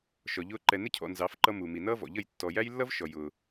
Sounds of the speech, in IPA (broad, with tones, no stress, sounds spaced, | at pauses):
ʃ ɔ˨ ʎ ʊː˦ ǃ ɛ˨ n ɪ˦ cʰ ɔ̰˨ n z ɑ˨˦ f ǃ ʌ˦ m u˨ m i˨ n ʌː˦ v ɔ̰˨ ʎ ə˦˨ j tː ɔ˨ j æ˦ j lː ʌ˦ v ʃ ɔ˨ j ʊː˦